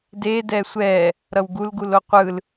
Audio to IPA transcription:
de dɛsʷɛ | ɾʌwɡulɡul oqʷɯl

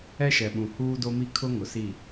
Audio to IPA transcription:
ɛ˦ʃɛ˨ɓũ˨ huː˦do˦mi˦ kʰʊ˦ŋʊ˨si˦˨

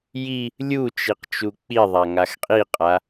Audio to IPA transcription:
ji | lʲu t͡ʃiqt͡ʃuk͡piðˤa ŋaxqʼiqʼa

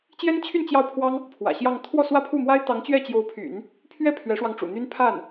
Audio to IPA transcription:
t͡ɕjɛ˥nt͡ɕʰy˥˧n t͡ɕjɑ˥˩ʊ̯pʰwɑ˥ŋ | pʰwä̰˨˩ɕjɑ˥˧ŋ t̪ʰwɔ˥˧swä˥˧pʰu˥˩mwa˥ɪ̯ t̪ɑ˧˥ŋt͡ɕɥɛ˥˩t͡ɕjo˧˥ʊ̯pʰy̰˨˩˦n | pʰɥɛ˥˩ pʰɥɛ˧˥ʂwɑ˧ŋʈ͡ʂṵ˨˩n̪y˥n pʰa˥˩n

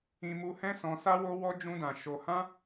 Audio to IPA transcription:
ĩ˧mu˧hɛ̃˦ sɔ̃˧sa˦wo˦wɔ˦ d͡ʒũ˧dã˨ ʃo˧ hã˦

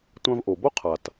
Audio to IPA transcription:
tʷã˧v ʔo˩bo˥qʰa˩t

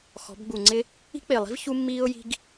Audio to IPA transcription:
xɔ̤˩˥bɡ͡bu˨˩ ŋ͡ǀɪ˥ | i̤˥k͡pɪː˨˩lˠi̤˥v çu˥mːiː˥ʊ̯ji̤˥ɡ

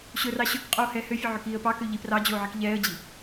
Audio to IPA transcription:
ɕɵrɑ ɕɵk qʼoːhɛːhøfʲɵ ʕøkiːə̯pɑkø ʎiprɑd͡ʑoː ʕikʎɛːə̯d͡ʑi

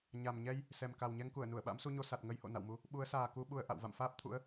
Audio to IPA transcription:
ɲa˨˩mɲɛ˧j | sɛ˨˩m ka˨˩wɲɛ˧ŋku˧˩ə̯ nu˧˩ə̯ɓa̰˧˥msu˧ɲo˧ sa˨˩t̚ ŋə˧jho̰˧˨ na̰˧˨wmu˧ | ɓu˨˦ə̯saː˨˩ku˧ ɓu˧ə̯ʔa̰˧˨w va̰˧˨mfaː˦˥p̚ t̪ʰṵ˧˥ə̯

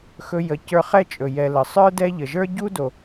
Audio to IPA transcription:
xɵ˦jə˨cə˞˦ χɛ˦t͡ʃʼɵ˩ jɛ˨lə˩ sˤə˞˥ dɛ˦ʎə˩ʒə˞˥ ɟu˥do˩

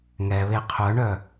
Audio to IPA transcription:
ŋɛβe qʰœɳœ

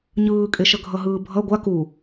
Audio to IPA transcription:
ɲɯːkʼeʃʌ ɡʱʌɦɯːbʱʌ ɡʷa ku

